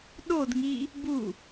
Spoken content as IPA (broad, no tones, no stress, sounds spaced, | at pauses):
ɗ o d ŋ i | b u